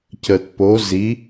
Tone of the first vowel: low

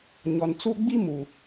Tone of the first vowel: low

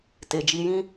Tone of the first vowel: low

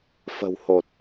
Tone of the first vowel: low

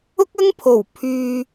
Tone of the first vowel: high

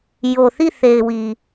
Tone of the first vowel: low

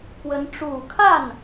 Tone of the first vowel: rising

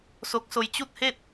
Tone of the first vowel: rising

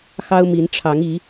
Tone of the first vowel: high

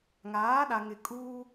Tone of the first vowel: rising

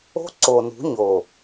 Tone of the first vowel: high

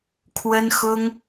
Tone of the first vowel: high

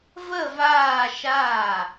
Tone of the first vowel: falling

